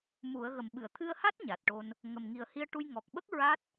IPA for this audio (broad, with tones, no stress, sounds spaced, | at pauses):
m u˨˩˦ ə̯ ɣ ə˨˩ m ɓ ɨ˨˩˨ ə̯ t̪ʰ ɨ˧ ə̯ h a˦˥ t̚ ɲ a˨˩ t̚ ʈ o˧ n | ŋ ə˨˩ m ŋ i˨˩ ə̯ h i˧ ə̯ ʈ u˧ j ŋ ɔ˨˩ k̚ ɓ ə˦˥ k̚ ɹ a˦˥ t̚